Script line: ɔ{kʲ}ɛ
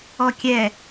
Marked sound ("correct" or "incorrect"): correct